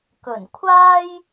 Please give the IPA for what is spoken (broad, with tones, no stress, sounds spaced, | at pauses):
k ɵ˨˩ n kʷʰ aː˥ j